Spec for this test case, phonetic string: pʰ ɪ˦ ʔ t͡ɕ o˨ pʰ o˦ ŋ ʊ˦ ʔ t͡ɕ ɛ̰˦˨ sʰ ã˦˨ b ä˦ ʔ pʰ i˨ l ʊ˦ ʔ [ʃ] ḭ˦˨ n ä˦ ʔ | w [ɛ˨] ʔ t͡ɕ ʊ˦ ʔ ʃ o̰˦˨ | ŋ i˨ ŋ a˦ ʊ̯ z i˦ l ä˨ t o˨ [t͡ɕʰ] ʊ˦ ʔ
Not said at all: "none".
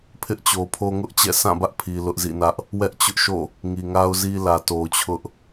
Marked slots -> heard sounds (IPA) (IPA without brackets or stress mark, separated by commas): z, ɛ˦, t͡ɕʰ